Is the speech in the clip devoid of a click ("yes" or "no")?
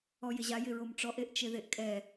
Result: yes